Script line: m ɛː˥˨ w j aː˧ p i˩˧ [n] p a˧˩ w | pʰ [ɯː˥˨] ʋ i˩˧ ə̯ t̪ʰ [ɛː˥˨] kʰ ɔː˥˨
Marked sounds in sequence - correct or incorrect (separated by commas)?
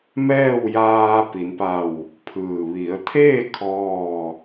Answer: correct, incorrect, incorrect